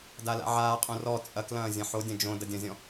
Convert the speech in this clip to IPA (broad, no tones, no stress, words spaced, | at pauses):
dala̰ʕaːqʼõ rɔ t͡sʼɐklɐ̃ː zʲɐ̃ħodʲɐ̃ d͡ʒõ dɐdʲɐ̃zʲɔ̃